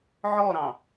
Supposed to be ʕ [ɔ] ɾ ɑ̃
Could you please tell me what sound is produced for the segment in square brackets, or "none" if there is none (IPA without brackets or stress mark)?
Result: ɔ